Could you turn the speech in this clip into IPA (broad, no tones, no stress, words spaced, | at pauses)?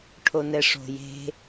ʈʰonɛʂo̤ je̤